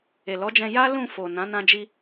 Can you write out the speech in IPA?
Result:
e˨lɔ˨˦d͡ʒɛ̃˧ ja˦ lũ˦˨fo˨ nã˨˦nã˧d͡ʒi˧

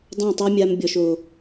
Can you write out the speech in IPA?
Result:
dˤõ˦˨tˤe˦mʲa˧m bʲɔ˨ʃo˨

